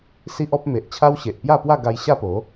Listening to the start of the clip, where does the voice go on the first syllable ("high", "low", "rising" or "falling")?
high